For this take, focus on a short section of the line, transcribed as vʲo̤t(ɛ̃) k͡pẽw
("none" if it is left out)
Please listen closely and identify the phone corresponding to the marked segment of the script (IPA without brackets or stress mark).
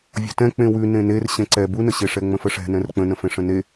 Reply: ɛ̃